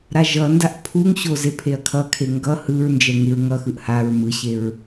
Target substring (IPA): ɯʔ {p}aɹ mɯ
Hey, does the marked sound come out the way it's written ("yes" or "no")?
no